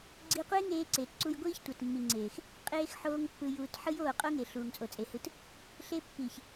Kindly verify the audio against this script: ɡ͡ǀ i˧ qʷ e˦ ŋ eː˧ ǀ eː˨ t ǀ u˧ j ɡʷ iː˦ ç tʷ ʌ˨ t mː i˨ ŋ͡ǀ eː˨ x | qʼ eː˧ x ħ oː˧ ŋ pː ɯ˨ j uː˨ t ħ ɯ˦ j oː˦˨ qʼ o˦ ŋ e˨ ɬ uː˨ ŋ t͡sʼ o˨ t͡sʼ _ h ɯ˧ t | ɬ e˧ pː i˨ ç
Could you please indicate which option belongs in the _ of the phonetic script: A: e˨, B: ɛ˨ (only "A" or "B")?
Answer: A